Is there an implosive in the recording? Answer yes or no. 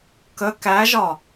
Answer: no